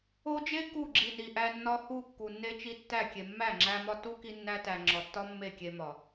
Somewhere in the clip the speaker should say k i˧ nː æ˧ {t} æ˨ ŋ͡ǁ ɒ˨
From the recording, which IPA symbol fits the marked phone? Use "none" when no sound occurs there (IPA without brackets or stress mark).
t